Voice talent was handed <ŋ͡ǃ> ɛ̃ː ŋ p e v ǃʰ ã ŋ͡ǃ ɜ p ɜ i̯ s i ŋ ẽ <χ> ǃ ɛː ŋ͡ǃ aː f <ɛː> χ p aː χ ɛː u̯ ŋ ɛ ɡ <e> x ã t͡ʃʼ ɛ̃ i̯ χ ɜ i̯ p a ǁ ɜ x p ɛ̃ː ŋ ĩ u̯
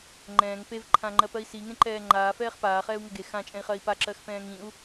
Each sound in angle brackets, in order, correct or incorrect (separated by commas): correct, incorrect, correct, correct